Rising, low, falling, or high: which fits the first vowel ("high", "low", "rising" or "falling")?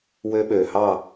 high